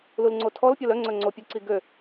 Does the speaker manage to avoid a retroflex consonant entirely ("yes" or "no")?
yes